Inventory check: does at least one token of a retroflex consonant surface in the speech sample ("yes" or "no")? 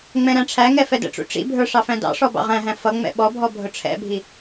yes